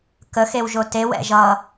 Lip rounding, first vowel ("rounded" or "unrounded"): unrounded